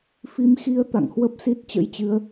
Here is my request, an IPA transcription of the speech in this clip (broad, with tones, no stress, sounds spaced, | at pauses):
f i˧ m x i˧ ə̯ t̪ a̰˧˨ ŋ h w ə˦˥ p̚ s i˦˥ t̚ t͡ɕ ə̰˧˥ j t͡ɕ ɨ˨˦ ə̯